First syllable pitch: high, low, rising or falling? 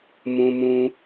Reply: high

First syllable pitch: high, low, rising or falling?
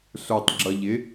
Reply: low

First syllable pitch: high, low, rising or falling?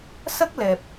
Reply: high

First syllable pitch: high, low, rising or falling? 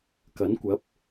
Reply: rising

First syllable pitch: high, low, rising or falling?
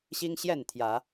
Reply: high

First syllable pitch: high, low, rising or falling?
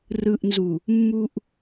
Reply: low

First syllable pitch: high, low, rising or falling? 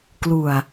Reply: low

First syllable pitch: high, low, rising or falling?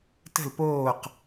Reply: falling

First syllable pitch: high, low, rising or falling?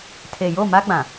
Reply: low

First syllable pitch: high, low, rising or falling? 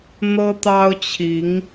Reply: high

